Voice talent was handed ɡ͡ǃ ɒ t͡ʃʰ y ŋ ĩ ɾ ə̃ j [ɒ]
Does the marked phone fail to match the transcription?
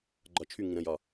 no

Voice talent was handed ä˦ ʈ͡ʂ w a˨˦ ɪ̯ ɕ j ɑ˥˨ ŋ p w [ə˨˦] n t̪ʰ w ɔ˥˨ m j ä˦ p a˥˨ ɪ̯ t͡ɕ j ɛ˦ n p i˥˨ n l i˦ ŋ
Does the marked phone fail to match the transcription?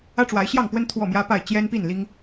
yes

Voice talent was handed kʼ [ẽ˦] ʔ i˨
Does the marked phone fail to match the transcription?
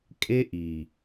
yes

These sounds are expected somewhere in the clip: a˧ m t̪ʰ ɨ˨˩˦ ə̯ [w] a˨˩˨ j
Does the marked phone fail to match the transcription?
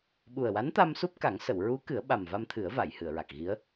yes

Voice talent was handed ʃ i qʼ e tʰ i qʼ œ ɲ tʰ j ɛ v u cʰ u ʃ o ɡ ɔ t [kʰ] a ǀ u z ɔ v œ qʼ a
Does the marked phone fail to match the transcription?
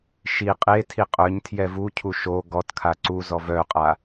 no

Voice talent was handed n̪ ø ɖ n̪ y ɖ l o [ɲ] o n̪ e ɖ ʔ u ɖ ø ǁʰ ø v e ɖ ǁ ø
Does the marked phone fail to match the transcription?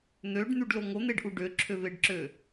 yes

